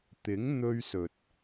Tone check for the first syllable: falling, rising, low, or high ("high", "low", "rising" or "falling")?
rising